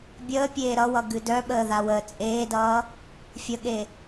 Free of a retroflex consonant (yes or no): yes